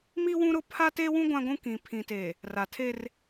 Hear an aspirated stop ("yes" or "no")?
yes